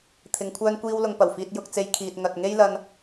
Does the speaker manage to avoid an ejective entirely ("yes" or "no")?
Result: yes